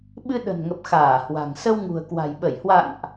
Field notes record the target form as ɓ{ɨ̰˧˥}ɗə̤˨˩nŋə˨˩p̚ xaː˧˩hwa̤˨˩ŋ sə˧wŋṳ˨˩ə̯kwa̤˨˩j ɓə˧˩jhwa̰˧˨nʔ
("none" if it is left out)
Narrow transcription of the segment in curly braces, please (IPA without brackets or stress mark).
ɨ˧